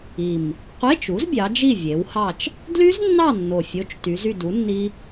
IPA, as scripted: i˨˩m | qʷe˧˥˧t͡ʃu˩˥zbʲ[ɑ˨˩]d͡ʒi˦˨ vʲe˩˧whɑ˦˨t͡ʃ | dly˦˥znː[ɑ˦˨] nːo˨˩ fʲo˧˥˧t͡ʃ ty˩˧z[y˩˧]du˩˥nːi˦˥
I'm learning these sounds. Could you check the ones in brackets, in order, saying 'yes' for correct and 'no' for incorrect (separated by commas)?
no, yes, no